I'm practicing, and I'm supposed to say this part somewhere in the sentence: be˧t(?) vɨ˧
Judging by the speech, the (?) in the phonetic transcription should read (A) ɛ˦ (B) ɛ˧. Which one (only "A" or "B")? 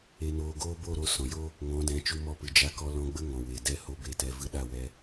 B